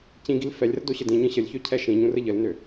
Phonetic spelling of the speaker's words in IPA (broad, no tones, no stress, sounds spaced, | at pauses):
c ĩ ɡ i l f ɛ lʲ r ə d o ɕ ə d ĩ ɲ ə̃ ɕ ə lʲ ç ø cʰ ɛ ʃ ĩ ɲ ũ r ə ʎ ə l n ø